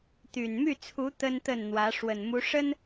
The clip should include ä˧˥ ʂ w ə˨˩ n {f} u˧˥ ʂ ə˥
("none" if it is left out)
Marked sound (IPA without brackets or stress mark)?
m